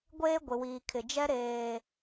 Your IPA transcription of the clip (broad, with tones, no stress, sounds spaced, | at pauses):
ɡʷ eː˦ ɡʷ ɪ˨ w iː˨ kʰ ɪ˨ d͡ʒ ɛ˦ ɾ eː˨